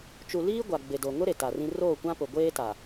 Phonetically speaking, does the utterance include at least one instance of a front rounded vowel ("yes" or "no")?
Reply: no